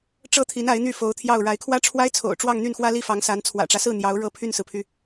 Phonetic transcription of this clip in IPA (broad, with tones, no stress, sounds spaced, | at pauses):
ʈ͡ʂ ɤ˥ t̪ʰ i˧˥ n a˧˥ ɪ̯ n̪ y˥˩ f o˧˥ ʊ̯ t̪ʰ j ɑ˥˩ ʊ̯ ɻ a˧˥ ɪ̯ kʰ w ä˥ ʈ͡ʂʰ w a˥ ɪ̯ t͡sʰ o̰˨˩ ʊ̯ ʈ͡ʂ w ɑ˥˧ ŋ n̪ y˥˩ n x w ä˥ l i˥˩ f ɑ˧˥ ŋ s a˧˥ n t͡sʰ w ä̰˨˩ ʈ͡ʂ ä˦ s ɹ̩˥˩ n̪ j ɑ˧˥ ʊ̯ ɻ ɤ˥˧ pʰ y˥˩ n s ɹ̩˩ pʰ y˩